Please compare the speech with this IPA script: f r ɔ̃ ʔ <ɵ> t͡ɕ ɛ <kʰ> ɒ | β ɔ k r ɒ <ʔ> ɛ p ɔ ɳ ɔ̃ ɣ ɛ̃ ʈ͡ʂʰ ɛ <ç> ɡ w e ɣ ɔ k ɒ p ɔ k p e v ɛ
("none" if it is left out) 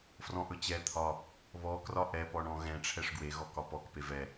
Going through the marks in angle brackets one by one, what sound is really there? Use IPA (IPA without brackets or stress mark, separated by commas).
ɵ, t̪ʰ, ʔ, ʂ